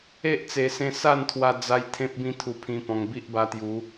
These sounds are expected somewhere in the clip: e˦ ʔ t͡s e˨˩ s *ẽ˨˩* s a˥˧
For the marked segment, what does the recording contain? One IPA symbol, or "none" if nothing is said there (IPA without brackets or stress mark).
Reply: ẽ˧